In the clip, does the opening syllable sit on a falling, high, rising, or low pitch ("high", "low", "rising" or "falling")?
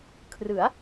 rising